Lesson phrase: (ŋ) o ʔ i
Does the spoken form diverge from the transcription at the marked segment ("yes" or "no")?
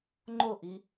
yes